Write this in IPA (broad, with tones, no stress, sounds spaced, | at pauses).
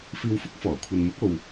f iː˧ w f ʊ˥ k̚ f ɔː˨˩ kʷʰ ɐ˨ n m ʊ˨˥ k̚ o˨ w